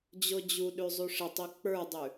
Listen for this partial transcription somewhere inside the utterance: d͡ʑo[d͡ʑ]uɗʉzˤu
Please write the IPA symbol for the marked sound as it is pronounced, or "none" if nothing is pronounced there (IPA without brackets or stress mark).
d͡ʑ